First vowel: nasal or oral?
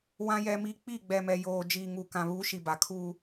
nasal